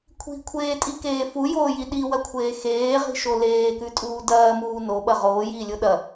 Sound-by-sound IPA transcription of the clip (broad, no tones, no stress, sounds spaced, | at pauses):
kʷʰ i̤ kʷʰ eː tʼ i k eː f u j oː j i ɗ i w ɐ kʷʰ eː x eː ʁ i̤ ʃ o l eː k ʉ tʼ uː d ɐː m uː n o ɓ ɐ ʁ oː j iː lʲ o ɗ ɐ